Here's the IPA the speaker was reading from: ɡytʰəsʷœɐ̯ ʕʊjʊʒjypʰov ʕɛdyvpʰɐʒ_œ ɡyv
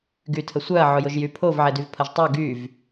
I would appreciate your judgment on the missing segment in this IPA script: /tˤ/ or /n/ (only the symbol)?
tˤ